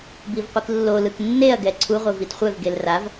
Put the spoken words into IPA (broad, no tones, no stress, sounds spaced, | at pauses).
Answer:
b i v qʷ i k lː o l ɯ k nː e ɐ̯ ɡ ɛ ǀʰ u ʁʷ e v i t χʷ ɛ v ɡ e l r a v